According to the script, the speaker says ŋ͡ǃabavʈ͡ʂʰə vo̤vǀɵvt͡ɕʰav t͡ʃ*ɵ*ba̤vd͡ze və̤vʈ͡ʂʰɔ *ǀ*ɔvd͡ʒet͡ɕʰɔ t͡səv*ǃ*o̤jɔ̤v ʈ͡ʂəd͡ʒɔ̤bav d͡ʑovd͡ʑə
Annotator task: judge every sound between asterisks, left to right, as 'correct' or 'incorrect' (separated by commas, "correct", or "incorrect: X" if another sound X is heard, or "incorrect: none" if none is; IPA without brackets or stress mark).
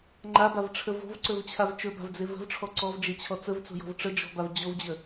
correct, correct, incorrect: t͡s